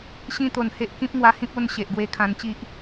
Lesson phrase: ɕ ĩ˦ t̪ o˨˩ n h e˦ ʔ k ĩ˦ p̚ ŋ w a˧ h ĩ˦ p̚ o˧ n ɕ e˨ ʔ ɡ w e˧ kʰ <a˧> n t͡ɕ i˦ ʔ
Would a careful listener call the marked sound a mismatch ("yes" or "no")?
yes